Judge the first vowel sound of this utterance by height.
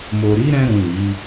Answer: mid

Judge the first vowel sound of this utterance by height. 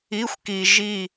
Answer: high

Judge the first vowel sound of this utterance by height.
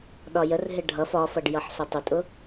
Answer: low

